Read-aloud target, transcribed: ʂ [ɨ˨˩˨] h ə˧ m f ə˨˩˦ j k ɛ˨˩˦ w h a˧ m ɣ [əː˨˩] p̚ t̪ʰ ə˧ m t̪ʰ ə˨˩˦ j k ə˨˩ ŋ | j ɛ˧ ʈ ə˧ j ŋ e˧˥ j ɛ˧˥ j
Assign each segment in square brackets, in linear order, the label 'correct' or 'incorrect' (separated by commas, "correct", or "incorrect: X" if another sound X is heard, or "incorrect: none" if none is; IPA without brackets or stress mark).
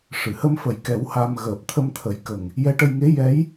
correct, correct